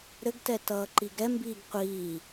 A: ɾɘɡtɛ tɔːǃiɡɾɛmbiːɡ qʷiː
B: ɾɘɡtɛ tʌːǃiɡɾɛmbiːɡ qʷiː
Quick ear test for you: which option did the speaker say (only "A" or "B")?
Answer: B